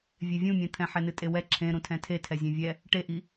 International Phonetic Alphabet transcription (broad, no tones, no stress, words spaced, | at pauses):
vʲevʲũmʲɛ̃t̪ʰɛ̃ ħɛnɨtʼewɛ ǁʰẽ ɾũtʰɛ̃tʰetʰɛ zʲẽvʲɛ | ʈeʔi